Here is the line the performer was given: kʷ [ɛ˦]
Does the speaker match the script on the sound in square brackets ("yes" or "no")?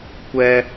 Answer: yes